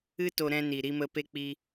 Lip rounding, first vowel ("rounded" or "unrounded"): unrounded